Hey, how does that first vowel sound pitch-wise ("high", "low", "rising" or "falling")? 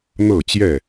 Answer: falling